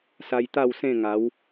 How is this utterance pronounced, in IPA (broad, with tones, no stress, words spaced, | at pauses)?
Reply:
sa˧jt̪a˥˧wsẽ˥˧ŋa˨˦w